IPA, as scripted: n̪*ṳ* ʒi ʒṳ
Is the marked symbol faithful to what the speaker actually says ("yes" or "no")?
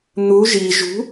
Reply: no